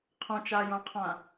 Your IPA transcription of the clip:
qʰ õ t͡ʃ a j õ qʰ ã

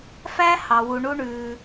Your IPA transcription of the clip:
f æ˥ h ɑ˧ w u˧ ɳ u˥ ɳ ʉː˧

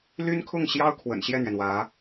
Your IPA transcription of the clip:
l y˥ n kʰ ʊ˥˩ ŋ ɕ j ɑ˥ ʊ̯ kʰ w ə̰˨˩ n ɕ j ɛ˥˩ n̪ ɥ ɛ˩ n w ä˧˥

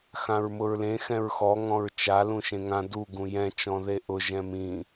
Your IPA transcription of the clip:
x ã ɹ m ʊ ɹ l ẽ x ɛ̃ ɹ x ɔ ŋ ɔ̃ ɹ t͡ʃ a l ũ ʃ ẽ ŋ ã d u ɡ ũ j ɛ̃ t͡ʃ ɔ̃ ð e ʔ ʊ ʒ ɛ̃ m ĩ

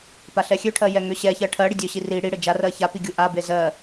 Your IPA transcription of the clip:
p a ɬ ɛ xʲ ø ʈʰ ɜ j ɛ ŋ ø ɕ ɛ ç ɜ ʈʰ ɜ ɽ i dʲ ø ɕ i r i ɽ i ɽ ɘ d͡ʒ a r ɜ ç a p i ɡʲ u ʔ a b e z ɜ

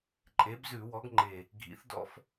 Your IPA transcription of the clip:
ǃʼ e˩˥ b z ʉ˧˩˧ w ɔ˩˥ ɡ ŋ͡ǃ e˨˩ | ɡʱ ḭ˩˥ θ d ɔ̰˦ f

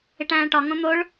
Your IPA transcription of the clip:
e ʈ æ̃ː ʈ ɒ ŋ õ n̪ o ɭ

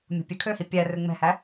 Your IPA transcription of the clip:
mʲ o̤ pʲ ø kʰ ø h i pʲ æ r ø ŋ͡m ɛ̤ h æ

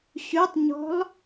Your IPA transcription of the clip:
ɕ ʉ tˤ ɲ ɔ̤ lˠ

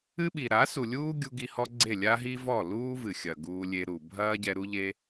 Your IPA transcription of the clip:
ɨ˦ ɓ i˨ ɾ a˨˦ s u˨ lʲ uː˦ ɡʲ u˧ ɡ i˧ h ɔ˦ ɡ͡ǀ e˦˨ lʲ a˦ ɦ i˦ v ɔ˦˨ l uː˦ v ɨ˨ xʲ ɐ˨ ɡ uː˧ lʲ e˧ ɾ u˨ bʱ ɐː˦ ɟ ɛ˧ ɾ u˦ ʎ e˦

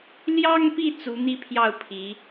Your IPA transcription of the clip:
l j ɑ˥ ŋ p i˥˩ t͡s u˧˥ n̪ i˥ pʰ j ɑ˥˩ ʊ̯ pʰ i˧˥

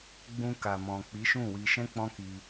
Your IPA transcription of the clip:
ɡ͡b ũ˧ k a˨ m ɔ̃˨ k͡p i˨˦ ʃ ũ˦˨ w i˧ ʃ ɛ̃˦ k͡p ɔ̃˦ k i˧

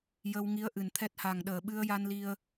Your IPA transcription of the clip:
j ə˧ w ŋ i˧˥ ə̯ ʔ ɨ˨˩ n t̪ʰ ɛ˦˥ t̚ h a˨˩ ŋ ɗ əː˨˩ ɓ ɨ˧ ə̯ j a˧ n l i˧ ə̯

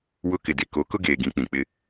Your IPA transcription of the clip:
w ʊ˦ k ɪ˨ d e˨ k o˨˦ k ʊ˦ ɡ eː˨ ɡ ĩ˨˦ k͡p ĩ˨ k͡p ɪ˦

